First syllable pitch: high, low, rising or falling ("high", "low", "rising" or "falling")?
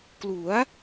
rising